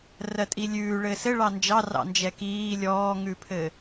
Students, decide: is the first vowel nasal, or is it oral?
oral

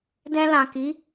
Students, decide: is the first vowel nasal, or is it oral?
nasal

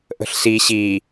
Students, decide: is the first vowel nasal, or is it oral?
oral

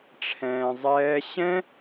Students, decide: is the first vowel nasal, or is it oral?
nasal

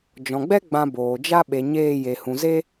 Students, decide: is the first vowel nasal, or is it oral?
nasal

